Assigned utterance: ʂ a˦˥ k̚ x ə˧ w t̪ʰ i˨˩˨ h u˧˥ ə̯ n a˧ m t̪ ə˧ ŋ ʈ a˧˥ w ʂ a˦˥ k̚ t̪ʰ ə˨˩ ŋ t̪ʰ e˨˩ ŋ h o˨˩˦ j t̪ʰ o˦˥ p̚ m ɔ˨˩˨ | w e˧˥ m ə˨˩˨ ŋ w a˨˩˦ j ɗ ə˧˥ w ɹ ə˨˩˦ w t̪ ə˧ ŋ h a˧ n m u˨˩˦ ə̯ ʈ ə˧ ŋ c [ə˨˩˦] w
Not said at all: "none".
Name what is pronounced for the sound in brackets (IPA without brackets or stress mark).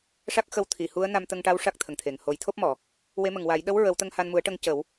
ə˨˩˦